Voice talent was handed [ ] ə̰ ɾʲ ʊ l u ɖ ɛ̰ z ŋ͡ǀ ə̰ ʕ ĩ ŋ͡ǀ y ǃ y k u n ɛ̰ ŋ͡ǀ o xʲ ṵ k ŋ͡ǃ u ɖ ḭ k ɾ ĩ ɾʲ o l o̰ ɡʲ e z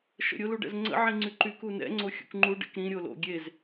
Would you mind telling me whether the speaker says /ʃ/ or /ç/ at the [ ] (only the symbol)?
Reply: ʃ